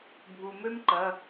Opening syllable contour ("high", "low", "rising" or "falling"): low